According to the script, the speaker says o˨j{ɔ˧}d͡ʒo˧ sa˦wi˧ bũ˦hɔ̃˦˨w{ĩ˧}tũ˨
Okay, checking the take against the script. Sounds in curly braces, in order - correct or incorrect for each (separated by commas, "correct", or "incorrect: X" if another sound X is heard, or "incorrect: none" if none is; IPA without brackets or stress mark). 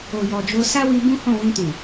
incorrect: ɔ˨, correct